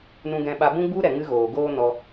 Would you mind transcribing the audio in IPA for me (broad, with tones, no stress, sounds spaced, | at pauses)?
n ũ˧ ɡ ɛ̃˧ ɓ a˧ b ũ˦ ɡ͡b u˦ ɾ ɛ˨ ŋ ɨ˦ ɣ oː˨ ɡ oː˧ n ɔ˧